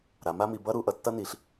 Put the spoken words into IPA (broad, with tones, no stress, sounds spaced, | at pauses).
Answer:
ɾ a˩˧ m a˦ m i˩˧ b ʌ˦ ɾ u˩˧ ʔ ʌ˩˧ tː ʌ˦ n i˩˧ ɬ